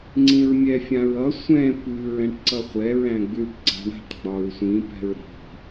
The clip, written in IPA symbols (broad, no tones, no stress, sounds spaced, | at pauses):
ŋ͡ǀ ĩ ɹ mʲ ɛ fʲ ã ɹ ʌ sʷ ɛ̃ p ʉ ɹ ɛ̃ ʈ ǀ ʌ χʷ ɛ ɹ æ̃ ɡ͡b ʉ ʈ ɡ͡ǀ a̤ ɳ a̤ ʈ ɡ͡b ɒ ɹ sʷ ĩ p ɛ̤ ɹ ɾ i̤